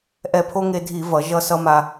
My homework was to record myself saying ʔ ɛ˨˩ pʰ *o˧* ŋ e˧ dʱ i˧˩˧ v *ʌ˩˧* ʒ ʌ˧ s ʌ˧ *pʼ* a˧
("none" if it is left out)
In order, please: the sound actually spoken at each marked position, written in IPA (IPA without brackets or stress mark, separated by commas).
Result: o˧, ʌ˩˧, m